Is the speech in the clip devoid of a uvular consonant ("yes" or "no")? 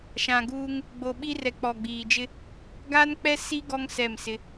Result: yes